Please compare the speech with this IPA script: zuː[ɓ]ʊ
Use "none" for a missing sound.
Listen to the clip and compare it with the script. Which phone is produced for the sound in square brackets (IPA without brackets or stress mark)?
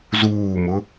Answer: m